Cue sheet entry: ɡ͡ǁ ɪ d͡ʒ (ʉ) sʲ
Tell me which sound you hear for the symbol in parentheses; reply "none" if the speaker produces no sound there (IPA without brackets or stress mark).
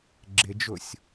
ʊ